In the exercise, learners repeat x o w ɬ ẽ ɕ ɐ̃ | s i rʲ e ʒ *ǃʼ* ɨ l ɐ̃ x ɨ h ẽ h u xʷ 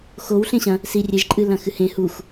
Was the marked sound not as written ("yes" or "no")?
no